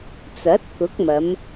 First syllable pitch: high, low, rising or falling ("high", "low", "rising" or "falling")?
rising